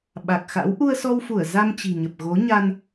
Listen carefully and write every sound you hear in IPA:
ɓ a˨˩ k̚ x a̰˧˥ w ʔ u˧ ə̯ s ɔ˧ w f u˧˩ ə̯ z a˧ m t͡ɕ i̤˨˩ ɲ ə˨˩ p̚ ɣ o˨˦ ɲ a˧ n

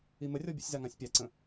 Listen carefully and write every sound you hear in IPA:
i m ə rʲ ɔ bʲ ə̰ sʲ z a ŋ ã sʲ pʲ a ǀ ə̃

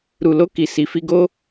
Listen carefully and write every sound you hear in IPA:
ɾ u˨ l o˧ k i˨ s i˨ f i˧ ɡ o˦

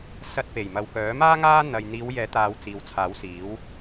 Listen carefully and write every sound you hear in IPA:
s ɐ˧ t̚ p e˨˩ j m ɐ˨ w k œː˨˥ m aː˥ ŋ aː˥ n̪ ɐ˨ j n̪ iː˨˧ w j ɛː˨˥ t̪ aː˨ w t͡s iː˨ w t͡sʰ aː˨˥ w s iː˨˥ w

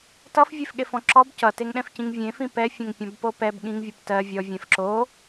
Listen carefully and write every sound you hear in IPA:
t ʌ f vʲ e f ɠ e f ɔ̃ ǁ ɔ b c ʌ t e ŋ ɗ ɛ̃ f c ĩ ŋ vʲ ẽ f ĩ p ɛ fʲ ɛ̃ ŋ pʲ ɔ̃ b p o p ɛ b ɠ ĩ ŋ vʲ o p t ɜ vʲ ɔ vʲ ɛ̃ f ǁ o

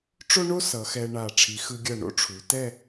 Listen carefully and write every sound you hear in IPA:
ʈ͡ʂ o˥ ɳ o˥ s ʌ˩˧ x ɛ˧ ɳ a˧˩ ʈ͡ʂʰ i˩˧ x ɯ˧ ɡʲ ʌ˧˩ ɳ o̰˥ ʈ͡ʂʰ u˩˧ t ɛ˥˧

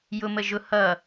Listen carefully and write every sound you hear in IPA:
j ʊ m ə ʒ ʊ h ʌ

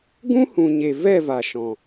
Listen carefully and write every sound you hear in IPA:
ɡ ũ˦ h ũ˨ ɲ e˨ v ɛ˦˨ v a˨ ʃ ɔ̃˨

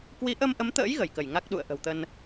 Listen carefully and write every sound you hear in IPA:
k w i˨˦ ʔ ə˧ m ʔ ə˨˦ m t̪ ə̰ː˧˥ j ɣ ə˧˩ j k ə˧˩ j ŋ a˦˥ k̚ ɗ ṵ˧˨ ə̯ ʔ ə̤˨˩ w t̪ ə˧ n

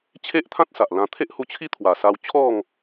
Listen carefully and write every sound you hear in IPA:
t͡ɕʰ e˦ ʔ t̪ʰ ã˦ t̚ s a˨ ʔ l ã˧ t̪ʰ e˦ ʔ h u˧ t͡ɕʰ i˦ t̪ʰ w a˨˩ s a˧ w t͡ɕʰ ɔ˥˧ ŋ

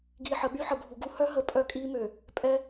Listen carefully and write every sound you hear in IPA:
ɡ iː˨ ħ ə˨ ɓ y˦ ħ ə˨ bʱ u˨ ɡ u˦ h œ˦ ɦ ə˨ pʼ œ˦ kʼ iː˦ m ø˨ | pʼ ɛ˦

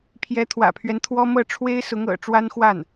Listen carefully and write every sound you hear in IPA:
pʰ j ɛ˧˥ t̪ʰ w ä̰˨˩ pʰ ɥ ɛ˦ n t̪ʰ w ɔ˥ m ɤ˥˩ ʈ͡ʂʰ w e˥ ɪ̯ s ʊ˧˥ ŋ ɤ̰˨˩ ʈ͡ʂ w a˥ n x w a˥˩ n

